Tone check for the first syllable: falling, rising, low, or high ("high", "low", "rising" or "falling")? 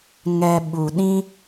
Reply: low